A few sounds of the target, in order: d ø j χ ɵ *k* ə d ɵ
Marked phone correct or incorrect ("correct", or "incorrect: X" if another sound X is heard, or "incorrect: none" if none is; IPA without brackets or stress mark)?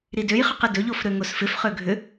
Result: incorrect: q